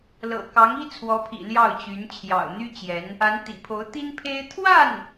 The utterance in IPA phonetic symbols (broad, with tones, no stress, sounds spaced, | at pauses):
l ɤ̰˨˩ k ɑ˧˥ ŋ i˥ t͡sʰ w ɔ˧˥ pʰ ḭ˨˩ l j ɑ˥˩ ʊ̯ t͡ɕ y˧˥ n t͡ɕʰ j ɑ̰˨˩ ʊ̯ n̪ y˥ t͡ɕ j ɛ˧˥ n | a˧˥ n t̪ ḭ˨˩ pʰ o˧˥ ʊ̯ t̪ i˥ n pʰ e˥ ɪ̯ t̪ʰ w a˥˩ n